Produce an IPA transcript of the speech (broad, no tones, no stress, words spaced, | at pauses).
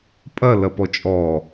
pʼɐ lɐpɔt͡ʃʼɔ